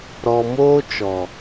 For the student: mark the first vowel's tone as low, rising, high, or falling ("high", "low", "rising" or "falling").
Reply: low